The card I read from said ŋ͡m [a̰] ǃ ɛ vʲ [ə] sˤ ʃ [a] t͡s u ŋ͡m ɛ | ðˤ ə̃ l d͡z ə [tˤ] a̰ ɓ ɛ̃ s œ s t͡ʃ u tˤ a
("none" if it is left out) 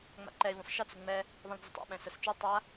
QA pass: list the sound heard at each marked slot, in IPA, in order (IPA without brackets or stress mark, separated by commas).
a̰, ə̃, ə, tˤ